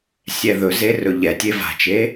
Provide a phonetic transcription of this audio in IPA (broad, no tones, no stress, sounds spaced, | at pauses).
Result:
sʲ ɛ ð ɵ z e r ɵ ʎ ɛ tʲ e v a̤ t͡ʃ e